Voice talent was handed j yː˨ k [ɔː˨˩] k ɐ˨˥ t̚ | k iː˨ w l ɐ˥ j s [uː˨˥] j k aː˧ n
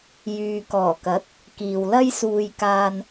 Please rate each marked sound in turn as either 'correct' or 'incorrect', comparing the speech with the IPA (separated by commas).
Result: correct, incorrect